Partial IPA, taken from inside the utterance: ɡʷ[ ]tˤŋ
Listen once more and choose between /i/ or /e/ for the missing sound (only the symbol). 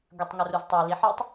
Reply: i